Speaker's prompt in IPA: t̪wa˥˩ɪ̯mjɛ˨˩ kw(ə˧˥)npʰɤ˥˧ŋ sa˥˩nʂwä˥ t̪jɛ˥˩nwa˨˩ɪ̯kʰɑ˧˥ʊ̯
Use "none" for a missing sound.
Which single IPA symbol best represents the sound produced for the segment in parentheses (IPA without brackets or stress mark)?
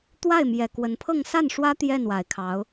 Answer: ə˧˥